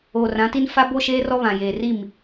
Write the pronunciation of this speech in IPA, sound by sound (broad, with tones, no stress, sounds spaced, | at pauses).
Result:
oː˨ r ã˨˦ t i˦ n f a˦ b o˦ ʃ eː˦ r ɔ˦ β ã˨ j eː˨ r i˦˨ m